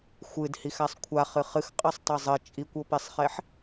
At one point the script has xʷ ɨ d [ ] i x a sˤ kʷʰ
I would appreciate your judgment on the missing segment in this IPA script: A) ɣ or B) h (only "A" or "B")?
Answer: B